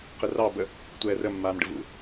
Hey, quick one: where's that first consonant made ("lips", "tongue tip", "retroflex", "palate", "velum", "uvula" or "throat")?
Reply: uvula